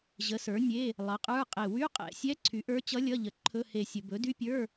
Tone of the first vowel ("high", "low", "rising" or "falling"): rising